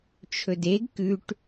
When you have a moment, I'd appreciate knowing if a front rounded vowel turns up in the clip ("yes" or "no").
no